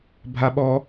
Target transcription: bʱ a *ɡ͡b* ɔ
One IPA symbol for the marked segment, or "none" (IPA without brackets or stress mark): ɓ